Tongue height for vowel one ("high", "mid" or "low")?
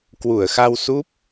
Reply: high